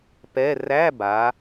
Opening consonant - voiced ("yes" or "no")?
no